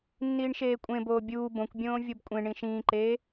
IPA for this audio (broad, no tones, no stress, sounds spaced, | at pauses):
nː iː ɳ ʃ eː kʷʼ ẽ b oː bʲ uː b õ kʷ bʲ õː vʲ o b kʷʼ ẽ ɳ ĩ ʃ ĩː ǃ eː